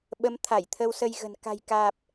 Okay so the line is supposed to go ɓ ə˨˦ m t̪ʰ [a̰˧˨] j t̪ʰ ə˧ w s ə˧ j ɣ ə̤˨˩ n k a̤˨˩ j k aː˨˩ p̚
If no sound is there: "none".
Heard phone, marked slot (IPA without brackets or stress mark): a˧˩